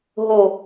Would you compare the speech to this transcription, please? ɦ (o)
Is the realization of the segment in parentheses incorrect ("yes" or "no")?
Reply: no